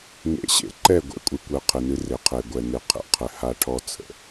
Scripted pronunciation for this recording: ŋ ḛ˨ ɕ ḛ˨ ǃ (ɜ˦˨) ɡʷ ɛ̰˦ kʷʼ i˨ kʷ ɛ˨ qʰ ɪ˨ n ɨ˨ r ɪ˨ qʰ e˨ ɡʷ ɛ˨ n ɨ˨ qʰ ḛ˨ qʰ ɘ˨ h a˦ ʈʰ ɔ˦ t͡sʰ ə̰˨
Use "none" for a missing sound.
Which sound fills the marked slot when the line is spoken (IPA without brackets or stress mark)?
ɛ˦˨